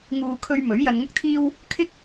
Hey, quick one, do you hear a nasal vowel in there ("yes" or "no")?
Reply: no